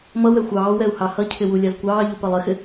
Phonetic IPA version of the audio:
m ʌ w ɛ xʷ ɑː w ɛ u̯ h ɑ h ʌ cʰ ɪ w u lʲ ɑ z kʷ ɑː ʎ u p ɜ lˠ ɪ x ɪ

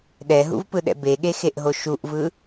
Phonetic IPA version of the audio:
ɗ ɛ ɦ ṵ v p ɯ ɗ ɛ̰ b e ɠ e x e ʔ ɦ o ʃ u ʔ v ɯ

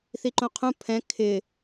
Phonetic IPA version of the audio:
θ i ǃ õ qʰ ũ pʰ ɛ̃ kʰ ɪ

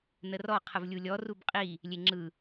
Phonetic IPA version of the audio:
n ə r ɔ qʰ ə v lʲ u lʲ ɔ r u b qʼ i | lʲ e ŋ͡ǁ ɯ

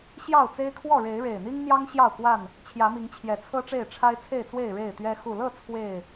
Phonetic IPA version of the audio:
ɕ j ɑ˥˨ ʊ̯ t͡s e˦ ɪ̯ kʰ w ɔ˥˨ ɻ e˨˦ ɪ̯ ɻ e˨˩ ɪ̯ n̪ i˦ ŋ n̪ j ɑ˦ ŋ ɕ j ɑ˥˨ ʊ̯ k w a˥˨ n | t͡ɕʰ j ä˨˦ m i˨˦ ŋ t͡ɕʰ j ɛ˨˩ t͡sʰ ɤ˦ ʈ͡ʂ e˥˨ ɪ̯ ʈ͡ʂʰ a˦ ɪ̯ t͡sʰ e˥˨ ɪ̯ t͡s w e˥˨ ɪ̯ ɻ e˥˨ ɪ̯ t̪ ɥ ɛ˦ x u˨˩ l ɤ˥˨ t͡sʰ w e˥˨ ɪ̯

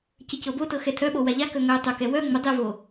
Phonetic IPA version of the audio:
c ə c ɤ b o t ɤ x ɛ tʰ œ ɓ o w a ʎ a k œ ŋ œ tˤ œ k ɛ w œ ŋ͡m ʊ dˤ i v o

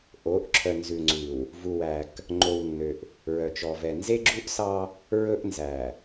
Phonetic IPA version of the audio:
ʔ o˨˦ ʔ ǁʰ œ˨ n z ʉ˨ ŋ͡ǀ ʉ˨ w | v u˨ w æ˨ k | ŋ͡ǃ o˨ w nː ø˨ ʔ | ɹ œ˨ t͡ʃ ɔ˨ v ɛ˨ n z e˦ ɡ͡ǁ u˦ ʔ s ɑ˦ | ɹ ɵ˦ ʔ n z æ˨

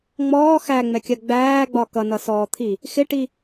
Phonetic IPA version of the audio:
ŋ͡m ɔː x æ ŋ͡m ɛ kʲ ɜ ɡ͡b æː ɡ͡b ɒ k ʌ n ʌ s ɔː t̪ʰ i | x ɪ ʈ i

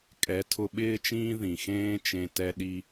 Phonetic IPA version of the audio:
kʼ ɛ˨˦ tʰ ʊ˧ ɓ ɪː˦ t͡ʃ ĩː˦ ð ĩ˨ x ẽː˦ t͡ʃ ẽ˧ t ɛ˦ ɗ i˦

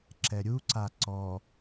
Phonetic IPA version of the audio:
ǁ ɛ ɾʲ u ǀ a ǀ ɔ

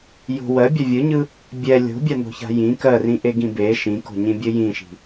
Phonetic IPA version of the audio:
j o̤ w ɜ bʲ a vʲ ɯ ɲ ɯ | bʲ ɛ lʲ o̤ bʲ a n o̤ ç a̤ j ĩ k ɜ r ĩ ʔ e ɡ ĩ b e ʃ ĩ k o̤ ɲ ĩ bʲ ɘ j ĩ ʃ i̤

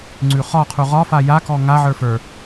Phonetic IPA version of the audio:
ŋ͡ǀ ʉ χ ɒ qʰ u ʁ ɒ f a j a k ɔ ŋ a ʕ ə˞ f ə˞

